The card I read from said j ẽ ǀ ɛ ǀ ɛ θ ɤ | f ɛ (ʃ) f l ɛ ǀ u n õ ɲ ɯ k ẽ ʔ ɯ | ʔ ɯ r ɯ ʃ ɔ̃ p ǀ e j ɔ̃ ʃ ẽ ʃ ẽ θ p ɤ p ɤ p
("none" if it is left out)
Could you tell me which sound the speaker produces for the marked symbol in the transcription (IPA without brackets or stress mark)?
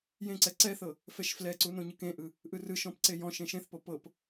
ʃ